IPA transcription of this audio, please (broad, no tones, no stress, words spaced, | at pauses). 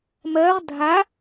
mɜʁ dʱa